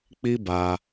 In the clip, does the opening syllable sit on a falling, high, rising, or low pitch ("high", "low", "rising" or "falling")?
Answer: high